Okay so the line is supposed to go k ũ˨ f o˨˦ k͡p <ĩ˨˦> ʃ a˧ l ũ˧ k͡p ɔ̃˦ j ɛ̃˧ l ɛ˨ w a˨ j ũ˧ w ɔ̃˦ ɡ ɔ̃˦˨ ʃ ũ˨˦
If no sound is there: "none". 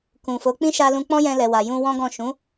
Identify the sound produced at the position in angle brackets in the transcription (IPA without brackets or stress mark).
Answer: ĩ˦